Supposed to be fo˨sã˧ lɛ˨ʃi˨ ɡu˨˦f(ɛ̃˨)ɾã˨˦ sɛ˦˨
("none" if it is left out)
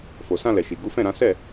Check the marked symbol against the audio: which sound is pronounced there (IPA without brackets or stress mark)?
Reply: ɛ̃˦˨